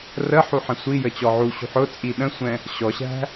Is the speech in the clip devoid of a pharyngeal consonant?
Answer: no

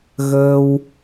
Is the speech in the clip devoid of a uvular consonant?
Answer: yes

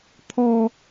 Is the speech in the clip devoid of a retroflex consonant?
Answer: yes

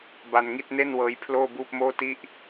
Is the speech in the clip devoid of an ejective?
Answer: yes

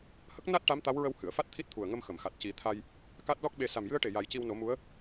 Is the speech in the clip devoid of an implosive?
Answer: no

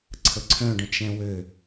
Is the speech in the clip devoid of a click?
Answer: no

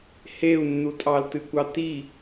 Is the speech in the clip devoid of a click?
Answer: yes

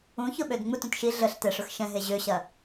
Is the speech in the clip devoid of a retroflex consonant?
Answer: no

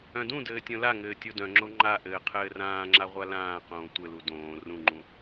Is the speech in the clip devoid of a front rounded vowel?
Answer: no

